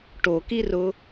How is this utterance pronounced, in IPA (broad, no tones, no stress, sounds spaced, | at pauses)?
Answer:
ʈ o k i r ʊ